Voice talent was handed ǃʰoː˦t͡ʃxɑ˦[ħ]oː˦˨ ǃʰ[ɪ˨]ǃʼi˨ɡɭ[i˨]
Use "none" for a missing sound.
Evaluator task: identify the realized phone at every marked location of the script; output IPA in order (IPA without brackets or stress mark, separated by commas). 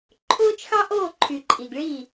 ʔ, y˨, i˦˨